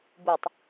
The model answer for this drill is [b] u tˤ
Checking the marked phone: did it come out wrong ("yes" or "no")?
no